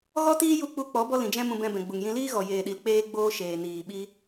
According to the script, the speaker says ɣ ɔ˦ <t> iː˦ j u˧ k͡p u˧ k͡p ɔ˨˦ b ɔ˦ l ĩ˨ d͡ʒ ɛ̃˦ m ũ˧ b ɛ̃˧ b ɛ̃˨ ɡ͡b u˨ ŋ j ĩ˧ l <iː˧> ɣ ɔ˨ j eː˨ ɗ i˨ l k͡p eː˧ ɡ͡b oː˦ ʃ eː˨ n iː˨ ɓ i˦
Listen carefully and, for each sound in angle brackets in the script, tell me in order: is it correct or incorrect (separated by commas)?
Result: correct, incorrect